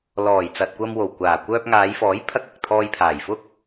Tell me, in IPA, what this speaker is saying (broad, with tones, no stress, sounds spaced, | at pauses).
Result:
l ɔː˨˩ j t͡s ɐ˨ t̚ kʷ ɐ˧ m w o˨˩ w kʷ aː˨˩ kʷ œː˧ p̚ ŋ aː˨˧ j f ɔː˨˥ j pʰ ɐ˥ k̚ ɐ˨ k̚ t̪ʰ ɔː˧ j pʰ aː˨˩ j f ʊ˥ k̚